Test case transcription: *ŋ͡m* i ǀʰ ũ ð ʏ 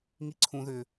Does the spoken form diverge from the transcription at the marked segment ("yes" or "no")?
yes